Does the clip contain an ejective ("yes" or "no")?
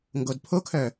no